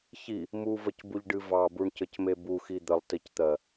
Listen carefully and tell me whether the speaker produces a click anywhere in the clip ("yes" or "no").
no